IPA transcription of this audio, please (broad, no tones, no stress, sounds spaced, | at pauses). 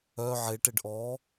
œ ʕ e ʈ e ɖ ʔ ɔ